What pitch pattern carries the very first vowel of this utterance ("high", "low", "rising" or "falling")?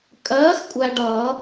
rising